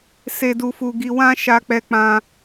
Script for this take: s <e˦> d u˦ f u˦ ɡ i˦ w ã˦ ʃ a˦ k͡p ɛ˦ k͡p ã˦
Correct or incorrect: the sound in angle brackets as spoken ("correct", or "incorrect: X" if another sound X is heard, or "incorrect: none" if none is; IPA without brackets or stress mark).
correct